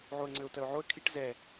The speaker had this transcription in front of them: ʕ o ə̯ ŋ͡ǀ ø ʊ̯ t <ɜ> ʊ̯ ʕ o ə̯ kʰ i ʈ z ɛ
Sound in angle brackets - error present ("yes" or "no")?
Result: no